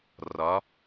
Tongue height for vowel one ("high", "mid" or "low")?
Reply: low